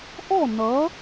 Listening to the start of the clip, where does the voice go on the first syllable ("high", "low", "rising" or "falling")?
falling